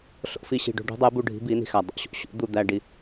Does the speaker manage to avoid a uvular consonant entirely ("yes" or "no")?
yes